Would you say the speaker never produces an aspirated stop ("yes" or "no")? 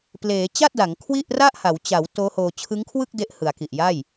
no